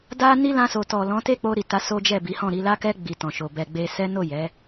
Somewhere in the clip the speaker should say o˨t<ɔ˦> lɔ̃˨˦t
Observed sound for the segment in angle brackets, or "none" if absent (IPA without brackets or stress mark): ɔ˨